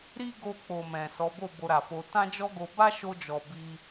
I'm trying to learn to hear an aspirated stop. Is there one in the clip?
no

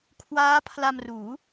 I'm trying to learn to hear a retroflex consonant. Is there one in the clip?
no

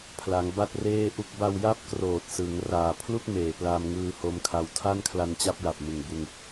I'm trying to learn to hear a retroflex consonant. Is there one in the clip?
no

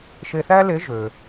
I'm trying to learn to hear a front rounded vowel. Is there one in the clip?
yes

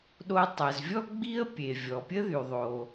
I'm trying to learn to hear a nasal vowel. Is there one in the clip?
no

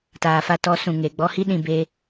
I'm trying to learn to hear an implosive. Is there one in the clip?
yes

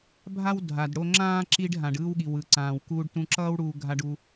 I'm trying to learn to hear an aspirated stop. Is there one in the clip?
no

